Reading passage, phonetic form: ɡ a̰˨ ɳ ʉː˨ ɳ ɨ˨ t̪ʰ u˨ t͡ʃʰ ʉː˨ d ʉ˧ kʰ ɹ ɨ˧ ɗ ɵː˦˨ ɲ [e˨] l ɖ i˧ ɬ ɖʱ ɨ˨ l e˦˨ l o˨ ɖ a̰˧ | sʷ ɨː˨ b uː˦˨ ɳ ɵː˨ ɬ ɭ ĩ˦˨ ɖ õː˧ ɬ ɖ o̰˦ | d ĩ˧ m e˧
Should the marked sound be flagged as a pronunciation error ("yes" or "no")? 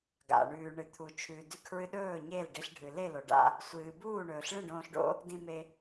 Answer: yes